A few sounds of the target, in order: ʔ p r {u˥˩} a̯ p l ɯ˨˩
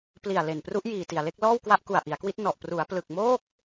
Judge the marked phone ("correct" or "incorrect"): incorrect